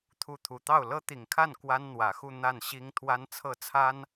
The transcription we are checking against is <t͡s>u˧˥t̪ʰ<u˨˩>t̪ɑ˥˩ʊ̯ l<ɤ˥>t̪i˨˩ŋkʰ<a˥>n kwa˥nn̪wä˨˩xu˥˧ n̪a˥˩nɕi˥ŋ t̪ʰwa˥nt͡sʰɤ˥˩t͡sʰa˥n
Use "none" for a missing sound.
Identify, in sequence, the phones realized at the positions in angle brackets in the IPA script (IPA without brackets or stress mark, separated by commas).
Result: t̪ʰ, u˨˩, ɤ˥, a˥˩